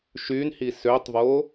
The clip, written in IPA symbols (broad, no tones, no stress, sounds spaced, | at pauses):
ʃ y n h i s ø tˤ v o